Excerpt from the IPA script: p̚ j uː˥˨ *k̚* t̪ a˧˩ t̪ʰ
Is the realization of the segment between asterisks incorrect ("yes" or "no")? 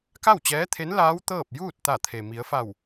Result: yes